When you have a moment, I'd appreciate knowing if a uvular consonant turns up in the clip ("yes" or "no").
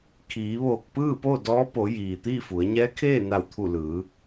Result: no